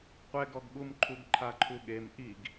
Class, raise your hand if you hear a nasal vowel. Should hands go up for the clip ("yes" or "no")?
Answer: no